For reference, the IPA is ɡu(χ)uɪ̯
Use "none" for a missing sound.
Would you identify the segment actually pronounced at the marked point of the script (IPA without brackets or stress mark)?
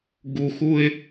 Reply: x